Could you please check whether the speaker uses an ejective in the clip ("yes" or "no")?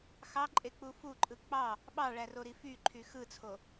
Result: yes